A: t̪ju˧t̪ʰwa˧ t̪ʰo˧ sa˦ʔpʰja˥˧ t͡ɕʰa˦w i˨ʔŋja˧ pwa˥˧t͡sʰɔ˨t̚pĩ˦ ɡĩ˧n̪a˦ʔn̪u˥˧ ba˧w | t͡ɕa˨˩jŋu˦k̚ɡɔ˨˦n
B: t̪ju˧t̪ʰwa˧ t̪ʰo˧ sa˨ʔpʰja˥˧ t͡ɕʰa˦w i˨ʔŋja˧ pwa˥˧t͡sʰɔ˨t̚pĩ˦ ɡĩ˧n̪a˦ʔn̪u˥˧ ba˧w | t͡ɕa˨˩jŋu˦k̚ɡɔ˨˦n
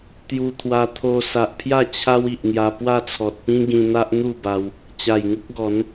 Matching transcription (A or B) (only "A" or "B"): B